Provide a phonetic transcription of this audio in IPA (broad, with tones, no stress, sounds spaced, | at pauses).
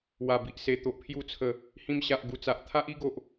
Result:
w a˨˩ b i˨ ʔ s e˨˩ t̪ o˨ ʔ pʰ j u˧ t͡sʰ ə˨˩ | h ĩ˧ m ɕ a˨ ʔ ɡ u˨˩ t͡s a˨ ʔ t̪ʰ a˦ ʔ i˦ ɡ o˨ ʔ